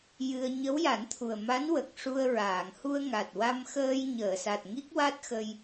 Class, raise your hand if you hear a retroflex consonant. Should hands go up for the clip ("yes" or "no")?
yes